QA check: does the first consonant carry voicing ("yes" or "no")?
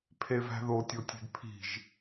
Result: no